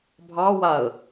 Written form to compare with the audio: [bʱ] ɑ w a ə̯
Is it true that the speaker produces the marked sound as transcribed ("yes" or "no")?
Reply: yes